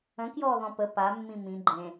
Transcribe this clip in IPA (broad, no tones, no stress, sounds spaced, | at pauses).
ə̃ k j ɔː ð ɔ̃ p ə p a mː ĩ m ĩ ɡ͡ǃ ẽ